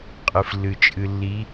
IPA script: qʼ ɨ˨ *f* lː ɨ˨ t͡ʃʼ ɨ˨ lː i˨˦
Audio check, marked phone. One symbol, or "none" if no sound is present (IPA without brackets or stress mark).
f